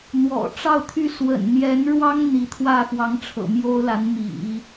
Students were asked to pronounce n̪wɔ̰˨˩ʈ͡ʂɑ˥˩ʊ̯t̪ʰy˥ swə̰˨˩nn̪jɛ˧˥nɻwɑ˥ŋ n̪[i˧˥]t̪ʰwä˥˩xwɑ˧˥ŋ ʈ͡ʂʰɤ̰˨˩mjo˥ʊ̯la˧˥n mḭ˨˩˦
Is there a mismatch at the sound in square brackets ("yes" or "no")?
no